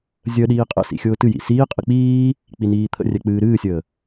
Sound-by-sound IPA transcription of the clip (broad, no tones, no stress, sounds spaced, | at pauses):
zʲ ə ɗ iː qʼ ə̰ s ḭ xʲ ʊː t ɨ j ḭ s iː qʼ ɨ k͡p iː | k͡p i n iː t̪ʰ ə̰ rʲ ɛ k͡p ɨː ɾ ɨː sʲ əː